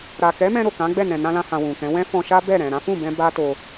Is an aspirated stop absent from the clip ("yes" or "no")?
yes